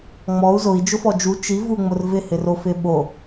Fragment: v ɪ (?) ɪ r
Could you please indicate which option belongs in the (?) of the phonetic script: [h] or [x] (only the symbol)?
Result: h